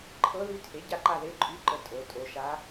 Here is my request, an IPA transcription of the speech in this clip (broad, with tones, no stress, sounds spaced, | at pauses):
ǃʰ ɤ˧˥ ð y˧˥ tʰ e˩˥ ɟ a˥˧ ǃ a˥˧ ð e˧˥˧ ǃʼ y˧˥˧ ǃ ə˧˩ tʼ o˩˧ tʼ o˩˧ ʃ a˧˥